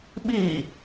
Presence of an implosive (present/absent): present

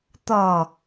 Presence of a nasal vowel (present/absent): absent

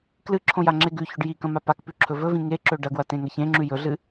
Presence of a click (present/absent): present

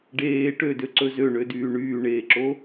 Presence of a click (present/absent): present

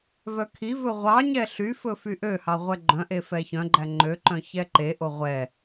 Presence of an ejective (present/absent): absent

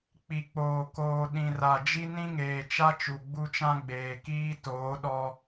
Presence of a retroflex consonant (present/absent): absent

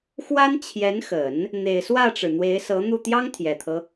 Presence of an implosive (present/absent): absent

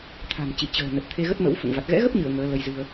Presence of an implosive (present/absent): absent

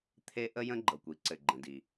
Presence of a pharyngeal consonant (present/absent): absent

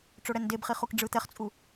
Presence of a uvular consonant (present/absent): present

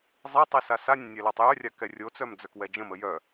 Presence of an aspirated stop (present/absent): absent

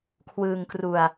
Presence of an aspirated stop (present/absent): present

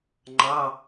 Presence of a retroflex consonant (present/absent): absent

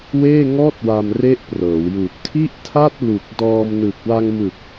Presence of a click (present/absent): absent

